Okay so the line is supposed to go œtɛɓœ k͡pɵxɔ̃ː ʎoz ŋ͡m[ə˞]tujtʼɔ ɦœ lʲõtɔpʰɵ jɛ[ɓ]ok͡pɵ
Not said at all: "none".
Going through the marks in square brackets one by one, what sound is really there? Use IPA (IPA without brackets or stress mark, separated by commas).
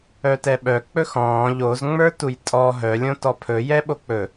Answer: ə˞, ɓ